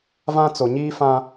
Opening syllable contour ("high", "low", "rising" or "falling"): high